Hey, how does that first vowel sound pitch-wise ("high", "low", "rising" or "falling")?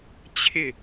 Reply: falling